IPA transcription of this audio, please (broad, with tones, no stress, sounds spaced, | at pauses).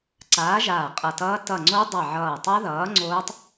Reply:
ǀ aː˨˥ ʒ aː˧˩ qʼ ʌ˧˩ t ʌː˦˥ t ʌ˧˩ ŋ͡ǀ o˦˥ dˤ ʌ˧˩ ʕ ʌː˧˩ tˤ a˦˥ ð ʌː˨˥ ŋ͡ǀ oː˦˥ tˤ